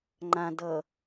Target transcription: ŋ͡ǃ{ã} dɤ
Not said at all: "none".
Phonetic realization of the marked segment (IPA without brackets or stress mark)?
ã